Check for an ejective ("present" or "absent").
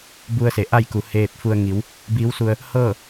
absent